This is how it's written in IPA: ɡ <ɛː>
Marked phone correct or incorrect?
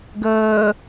incorrect